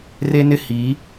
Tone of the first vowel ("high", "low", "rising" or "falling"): high